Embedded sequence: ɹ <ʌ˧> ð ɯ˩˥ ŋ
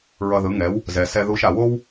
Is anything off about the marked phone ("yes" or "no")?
no